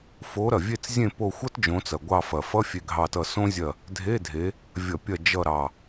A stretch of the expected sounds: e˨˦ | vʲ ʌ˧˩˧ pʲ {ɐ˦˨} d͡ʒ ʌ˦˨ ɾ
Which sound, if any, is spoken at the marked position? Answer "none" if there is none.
ɐ˦˨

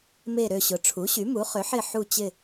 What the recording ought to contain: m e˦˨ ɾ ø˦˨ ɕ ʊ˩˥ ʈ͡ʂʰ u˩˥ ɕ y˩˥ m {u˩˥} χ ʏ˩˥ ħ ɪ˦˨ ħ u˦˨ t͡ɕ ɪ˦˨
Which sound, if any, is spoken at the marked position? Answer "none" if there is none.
u˩˥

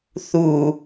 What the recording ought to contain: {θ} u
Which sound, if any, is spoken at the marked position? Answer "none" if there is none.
θ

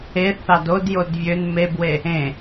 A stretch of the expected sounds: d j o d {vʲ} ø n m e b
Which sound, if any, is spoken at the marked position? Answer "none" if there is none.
vʲ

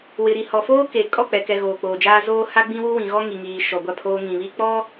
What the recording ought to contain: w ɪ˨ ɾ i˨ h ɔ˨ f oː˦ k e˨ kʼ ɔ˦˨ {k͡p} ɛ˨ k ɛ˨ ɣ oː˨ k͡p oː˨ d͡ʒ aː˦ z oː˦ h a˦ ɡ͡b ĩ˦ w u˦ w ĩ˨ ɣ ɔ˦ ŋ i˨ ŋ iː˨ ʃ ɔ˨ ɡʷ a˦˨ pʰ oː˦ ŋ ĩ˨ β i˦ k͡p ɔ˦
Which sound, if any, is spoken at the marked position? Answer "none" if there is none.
k͡p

